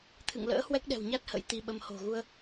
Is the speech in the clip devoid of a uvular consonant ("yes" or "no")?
yes